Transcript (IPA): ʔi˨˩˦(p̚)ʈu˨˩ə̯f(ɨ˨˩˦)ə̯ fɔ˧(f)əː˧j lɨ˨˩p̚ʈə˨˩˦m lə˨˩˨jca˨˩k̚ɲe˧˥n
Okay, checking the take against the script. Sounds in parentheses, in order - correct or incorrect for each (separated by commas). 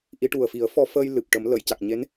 incorrect, incorrect, correct